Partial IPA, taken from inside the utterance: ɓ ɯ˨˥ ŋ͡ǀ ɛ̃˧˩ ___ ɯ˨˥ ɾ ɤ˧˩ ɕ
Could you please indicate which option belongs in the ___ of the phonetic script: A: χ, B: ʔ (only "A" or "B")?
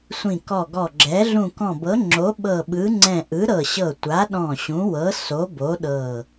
B